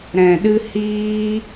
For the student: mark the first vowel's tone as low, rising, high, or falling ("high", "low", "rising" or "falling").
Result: low